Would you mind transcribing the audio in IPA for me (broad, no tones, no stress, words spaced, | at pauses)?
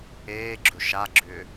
eːɡ͡ǁɵ ʃaɡ͡ǁʏː